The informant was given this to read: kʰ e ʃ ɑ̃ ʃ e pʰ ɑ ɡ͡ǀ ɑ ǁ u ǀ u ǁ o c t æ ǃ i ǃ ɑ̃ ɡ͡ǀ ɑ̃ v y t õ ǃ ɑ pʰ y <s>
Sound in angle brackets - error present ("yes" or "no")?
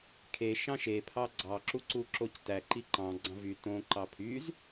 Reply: yes